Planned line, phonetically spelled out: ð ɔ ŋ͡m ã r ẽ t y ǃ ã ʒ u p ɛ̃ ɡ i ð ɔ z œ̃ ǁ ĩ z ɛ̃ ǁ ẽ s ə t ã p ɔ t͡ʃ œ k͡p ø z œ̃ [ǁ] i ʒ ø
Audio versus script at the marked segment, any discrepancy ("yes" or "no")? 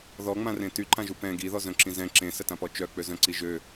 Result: yes